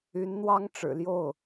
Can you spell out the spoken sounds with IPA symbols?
y˧˥nn̪wɑ˥ŋʈ͡ʂɻ̩˨˩ljo˥˩ʊ̯

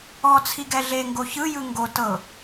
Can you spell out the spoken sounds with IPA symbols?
ɔ t͡sʰiɡɛɮeŋɡo çɯjɯ ŋɡo tɤ

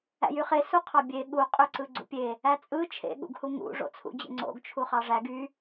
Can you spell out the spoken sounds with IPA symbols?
æ̰jyχe suqʰɑbʲe ɠu qʼøǀɯɡ͡ǀṵpʲe | æt͡sʼɯ t͡ʃʰḛ ɠṵɡhuŋṵ ʐo̰t͡sʰṵd͡ʑḛŋ͡ǀo̰ɡ t͡ʃʰuχɑʐæɡ y

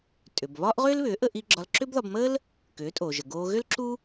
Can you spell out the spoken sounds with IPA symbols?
tʼʏ˩bβɒː˥ʔʁʏː˥lβʏː˩˥ ʔə˧ʔi˧ ɡ͡ǁɒ˧lǁʏː˥bðɒ˧b məː˥l | kʏː˩˥tʼoː˩ʒə˩ ɡoː˧ɣʏ˥lǁu˥

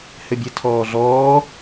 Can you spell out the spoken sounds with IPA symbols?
hɘbʲɘ tʰɔːɮɔː

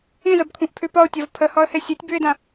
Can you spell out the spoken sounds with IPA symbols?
ĩzəbkʷʰĩʔ pʰʉpɒʊ̯tʲɒv pʰəhɒə̯he sʲotʲbʉɪ̯dã

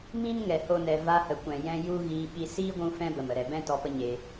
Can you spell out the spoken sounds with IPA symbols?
mĩ˦n ŋɛ˧ho˦nɛ˧ va˧hə˨kʷɛ̃˨ jɛ̃˦ ju˦ɣiː˧ɓi˧ siː˦ ɡʷũ˦fɛ̃˦ bə˨mə˨ɾɛ˨bɛ̃˦ tɔ˧pə˦ɲeː˧

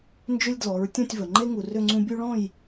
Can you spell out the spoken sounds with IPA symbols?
nd͡ʒʏ˦lʲdlɔ˩˧ɹ tʲɔ̃˥˨tʲvə˩ ŋ͡ǃe˦ ŋu˩rʏ˥˨ŋ͡ǀũ˦ bʲu˦ɭɔ̃˥˨j

